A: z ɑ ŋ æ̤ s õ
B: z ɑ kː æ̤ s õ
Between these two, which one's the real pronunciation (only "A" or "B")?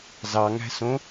A